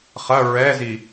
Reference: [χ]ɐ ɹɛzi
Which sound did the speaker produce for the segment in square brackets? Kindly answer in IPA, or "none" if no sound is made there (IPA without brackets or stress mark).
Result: χ